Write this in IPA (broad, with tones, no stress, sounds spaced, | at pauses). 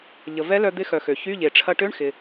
ʎ ə˩ v ɛ˧˥ l œ˧ d̪ ɪ˧˥ x œ˩ x ø˩ ç y˧˥˧ ʎ e˩ ʈ͡ʂʰ ɐ˧ ʈ ø˧˥˧ ɳ x ɪ˩